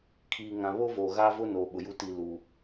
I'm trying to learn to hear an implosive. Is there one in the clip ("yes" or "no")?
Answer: yes